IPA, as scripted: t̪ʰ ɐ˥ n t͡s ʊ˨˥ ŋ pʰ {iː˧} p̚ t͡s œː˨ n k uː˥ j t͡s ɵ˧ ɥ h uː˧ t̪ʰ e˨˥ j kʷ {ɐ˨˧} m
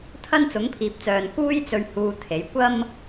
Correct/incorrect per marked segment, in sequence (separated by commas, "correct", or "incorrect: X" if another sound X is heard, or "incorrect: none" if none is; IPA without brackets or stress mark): incorrect: iː˨, incorrect: ɐ˥